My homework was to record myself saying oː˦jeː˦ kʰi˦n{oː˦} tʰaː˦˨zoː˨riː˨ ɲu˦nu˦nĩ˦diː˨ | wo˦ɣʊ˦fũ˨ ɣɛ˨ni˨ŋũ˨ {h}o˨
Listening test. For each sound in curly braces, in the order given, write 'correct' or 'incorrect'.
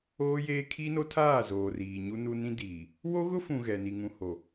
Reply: incorrect, correct

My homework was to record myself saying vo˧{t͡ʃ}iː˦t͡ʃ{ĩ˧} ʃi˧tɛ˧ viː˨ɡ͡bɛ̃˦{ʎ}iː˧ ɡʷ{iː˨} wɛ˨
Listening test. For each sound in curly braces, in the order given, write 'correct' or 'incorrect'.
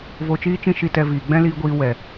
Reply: correct, incorrect, incorrect, incorrect

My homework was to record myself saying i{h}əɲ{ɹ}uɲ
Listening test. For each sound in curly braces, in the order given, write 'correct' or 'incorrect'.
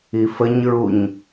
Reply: incorrect, correct

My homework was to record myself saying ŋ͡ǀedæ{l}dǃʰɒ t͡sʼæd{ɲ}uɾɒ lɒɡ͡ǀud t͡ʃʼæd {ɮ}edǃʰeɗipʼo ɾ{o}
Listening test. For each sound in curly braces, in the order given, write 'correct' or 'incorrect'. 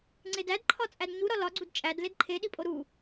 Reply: incorrect, correct, incorrect, incorrect

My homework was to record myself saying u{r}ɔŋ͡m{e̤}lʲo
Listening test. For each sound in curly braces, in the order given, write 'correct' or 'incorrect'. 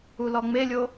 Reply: incorrect, incorrect

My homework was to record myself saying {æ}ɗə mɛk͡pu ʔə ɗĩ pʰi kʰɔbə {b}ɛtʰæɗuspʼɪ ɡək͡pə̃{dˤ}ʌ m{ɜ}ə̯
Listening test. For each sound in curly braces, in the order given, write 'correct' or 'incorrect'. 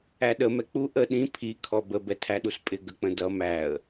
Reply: correct, correct, incorrect, incorrect

